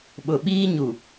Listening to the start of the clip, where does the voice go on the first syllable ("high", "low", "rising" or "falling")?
low